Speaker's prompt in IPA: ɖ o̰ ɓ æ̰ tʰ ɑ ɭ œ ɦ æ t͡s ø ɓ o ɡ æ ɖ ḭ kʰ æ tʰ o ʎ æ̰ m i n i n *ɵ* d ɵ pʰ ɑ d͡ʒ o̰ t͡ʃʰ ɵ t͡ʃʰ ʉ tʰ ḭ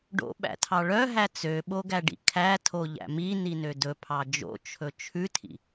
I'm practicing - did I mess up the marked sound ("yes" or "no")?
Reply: yes